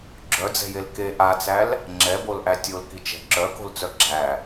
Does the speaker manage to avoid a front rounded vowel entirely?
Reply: no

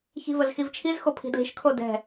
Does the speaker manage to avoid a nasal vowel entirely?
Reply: yes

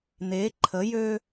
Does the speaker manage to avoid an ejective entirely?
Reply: yes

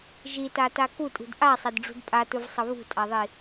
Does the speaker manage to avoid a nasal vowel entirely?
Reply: yes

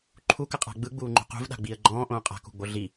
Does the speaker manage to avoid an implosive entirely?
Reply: no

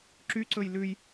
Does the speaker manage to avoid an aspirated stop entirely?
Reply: yes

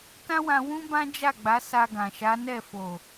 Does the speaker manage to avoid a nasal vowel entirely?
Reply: no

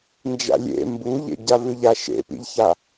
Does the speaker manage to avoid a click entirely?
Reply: yes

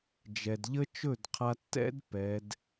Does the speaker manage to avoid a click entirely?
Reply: yes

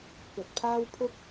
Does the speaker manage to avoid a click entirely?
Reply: yes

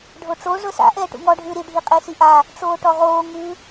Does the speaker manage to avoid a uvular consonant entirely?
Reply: no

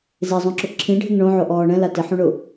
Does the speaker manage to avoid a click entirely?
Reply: no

